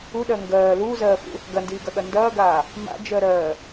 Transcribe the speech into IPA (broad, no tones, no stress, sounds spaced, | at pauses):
u ɗ ɜ ŋ ɡ ɜː l uː z ɜː f ṵ | ɡ ɐ n d iː ɡ ɐ ɠ ɐ n d ɐː ɡ aː | m a̰ d͡ʒ ɜ ɾ ɜː